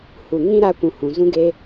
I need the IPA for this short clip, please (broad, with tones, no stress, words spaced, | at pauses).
hu˨ ŋĩ˦ɾa˧kʷũ˨ hũ˨zũ˦ɡe˦